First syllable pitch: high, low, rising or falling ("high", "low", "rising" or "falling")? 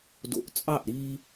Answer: low